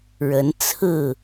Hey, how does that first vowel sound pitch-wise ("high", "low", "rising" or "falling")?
rising